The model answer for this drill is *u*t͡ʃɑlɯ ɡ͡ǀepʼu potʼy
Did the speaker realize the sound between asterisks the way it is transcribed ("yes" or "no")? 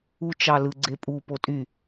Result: yes